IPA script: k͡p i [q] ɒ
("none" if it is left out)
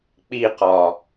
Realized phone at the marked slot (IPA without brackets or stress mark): q